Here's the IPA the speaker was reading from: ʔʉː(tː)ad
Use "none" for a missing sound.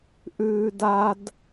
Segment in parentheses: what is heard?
d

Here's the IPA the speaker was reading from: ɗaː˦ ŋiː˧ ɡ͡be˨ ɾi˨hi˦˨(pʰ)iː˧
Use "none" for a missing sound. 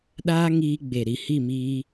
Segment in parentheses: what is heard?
m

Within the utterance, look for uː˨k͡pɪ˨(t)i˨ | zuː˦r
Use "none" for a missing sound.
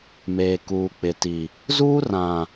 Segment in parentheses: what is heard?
t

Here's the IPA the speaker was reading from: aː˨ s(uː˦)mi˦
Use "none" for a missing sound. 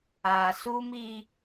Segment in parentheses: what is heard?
uː˦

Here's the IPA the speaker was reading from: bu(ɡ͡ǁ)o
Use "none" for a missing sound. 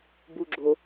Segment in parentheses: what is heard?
ɡ͡ǁ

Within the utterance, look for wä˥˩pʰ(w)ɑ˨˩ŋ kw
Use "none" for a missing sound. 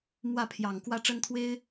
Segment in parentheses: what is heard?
j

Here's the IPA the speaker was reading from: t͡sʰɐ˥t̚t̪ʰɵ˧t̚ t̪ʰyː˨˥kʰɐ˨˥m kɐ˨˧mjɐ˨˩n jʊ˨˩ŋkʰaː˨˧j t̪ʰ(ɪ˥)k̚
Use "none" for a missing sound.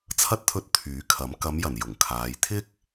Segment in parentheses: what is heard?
ɪ˥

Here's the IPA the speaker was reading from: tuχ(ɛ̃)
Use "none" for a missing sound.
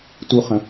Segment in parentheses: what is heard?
ə̃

